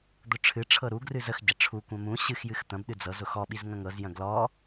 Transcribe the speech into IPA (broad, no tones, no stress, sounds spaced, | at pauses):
d̪ ʊ ʈ͡ʂʰ ɨ ʈ͡ʂʰ ɤ ɾ u ɡ r ɨ z ə x ɟ ɐ ʈ͡ʂʰ u kʷ ɐ̃ m ũ ɕ ɨ x j ɨ x t̪ ɐ̃ b ɗ ɨ d͡z ɤ z ʊ x ɔ ɓ i z ŋ ɐ̃ ŋ ɤ z j ɐ̃ ɡ l ɔ